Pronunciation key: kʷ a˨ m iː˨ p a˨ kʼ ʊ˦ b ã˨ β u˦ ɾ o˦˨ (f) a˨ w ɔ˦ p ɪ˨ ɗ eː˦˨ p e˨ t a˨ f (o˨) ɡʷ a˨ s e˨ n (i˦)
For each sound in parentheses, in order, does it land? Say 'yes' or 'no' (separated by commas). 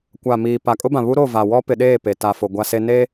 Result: no, yes, no